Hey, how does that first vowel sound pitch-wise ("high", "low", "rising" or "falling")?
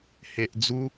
low